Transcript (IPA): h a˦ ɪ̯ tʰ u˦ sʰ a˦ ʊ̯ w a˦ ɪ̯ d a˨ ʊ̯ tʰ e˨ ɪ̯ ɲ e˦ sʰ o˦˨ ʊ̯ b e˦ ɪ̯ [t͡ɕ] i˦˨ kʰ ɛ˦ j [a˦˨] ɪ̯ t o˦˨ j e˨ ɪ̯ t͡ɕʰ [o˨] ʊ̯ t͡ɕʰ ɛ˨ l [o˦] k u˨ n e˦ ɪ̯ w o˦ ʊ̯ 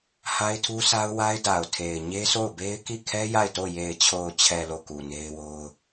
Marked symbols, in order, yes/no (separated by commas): no, yes, yes, no